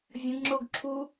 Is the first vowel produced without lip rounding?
yes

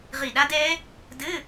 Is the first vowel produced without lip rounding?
yes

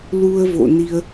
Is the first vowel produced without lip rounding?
no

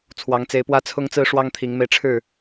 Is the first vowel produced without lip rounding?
yes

